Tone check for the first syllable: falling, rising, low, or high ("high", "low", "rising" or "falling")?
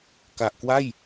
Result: low